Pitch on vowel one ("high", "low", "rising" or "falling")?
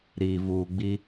low